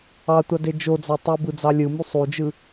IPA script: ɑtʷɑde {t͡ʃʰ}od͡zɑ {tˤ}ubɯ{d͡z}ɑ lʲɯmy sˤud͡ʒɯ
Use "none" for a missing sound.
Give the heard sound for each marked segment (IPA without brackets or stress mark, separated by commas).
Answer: d͡ʒ, tˤ, d͡z